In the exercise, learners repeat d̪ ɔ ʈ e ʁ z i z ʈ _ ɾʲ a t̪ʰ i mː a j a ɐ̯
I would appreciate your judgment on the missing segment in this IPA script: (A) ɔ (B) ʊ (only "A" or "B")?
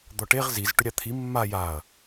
B